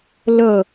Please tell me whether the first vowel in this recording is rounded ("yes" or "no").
no